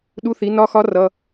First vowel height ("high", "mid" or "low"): high